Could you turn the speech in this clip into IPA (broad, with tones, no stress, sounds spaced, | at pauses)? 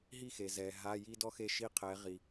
ɦ i˥˨ x e˨ z ɛ˨ ɦ a˧˥˧ j i˥ d ɔ˥ x e˥˨ ʃ i˥˨ qʰ ɛ˨˦ ʁ i˨